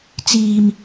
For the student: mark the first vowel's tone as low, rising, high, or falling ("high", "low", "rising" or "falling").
high